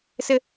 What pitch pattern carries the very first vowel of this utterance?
high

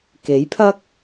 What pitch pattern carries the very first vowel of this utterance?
rising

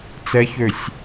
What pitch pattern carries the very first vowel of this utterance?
rising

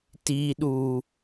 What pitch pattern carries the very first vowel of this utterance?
low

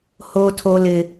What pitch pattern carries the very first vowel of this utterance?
high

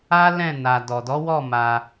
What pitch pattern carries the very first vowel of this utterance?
high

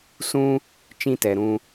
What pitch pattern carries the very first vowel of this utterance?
high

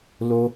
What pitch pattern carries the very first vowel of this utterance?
high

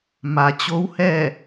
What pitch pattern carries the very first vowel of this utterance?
low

